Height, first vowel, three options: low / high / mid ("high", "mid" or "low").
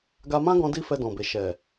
low